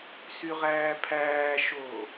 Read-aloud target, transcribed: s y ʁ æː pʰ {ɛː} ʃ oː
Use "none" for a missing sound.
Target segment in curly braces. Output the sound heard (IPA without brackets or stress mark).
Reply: æː